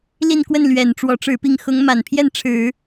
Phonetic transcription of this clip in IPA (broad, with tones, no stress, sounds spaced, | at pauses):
l i˥˧ n k w ə˥˩ n l ɥ ɛ˨˩ n ʈ͡ʂ w ɔ˧˥ ʈ͡ʂ ɻ̩˧˥ p i˥˩ ŋ x ʊ˧˥ ŋ m a˨˩ n pʰ j ɛ˥˩ n ʈ͡ʂʰ ɻ̩˨˩˦